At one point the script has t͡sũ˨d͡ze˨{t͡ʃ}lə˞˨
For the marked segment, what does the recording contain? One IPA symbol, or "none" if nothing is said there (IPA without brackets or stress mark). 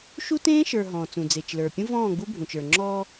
t͡ʃ